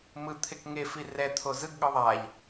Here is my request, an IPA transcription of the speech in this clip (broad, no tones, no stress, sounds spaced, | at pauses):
m ɯ t̪ʰ e k ŋ e f i r ɛ t̪ʰ o z ɯ ɡ ɠ ɯ ðˤ a ʎ